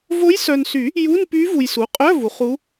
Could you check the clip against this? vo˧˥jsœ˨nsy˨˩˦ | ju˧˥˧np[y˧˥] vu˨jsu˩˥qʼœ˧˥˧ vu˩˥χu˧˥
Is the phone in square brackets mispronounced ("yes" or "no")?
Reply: no